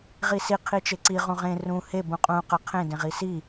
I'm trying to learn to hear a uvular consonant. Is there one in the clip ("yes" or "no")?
yes